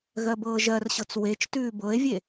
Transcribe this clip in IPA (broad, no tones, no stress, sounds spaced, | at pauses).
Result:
ɣ ɜ b ɤː ʒ ɜ r ɕ ɤ t͡s w e t͡ʃ t ʉː b ɤ e̯ vʲ e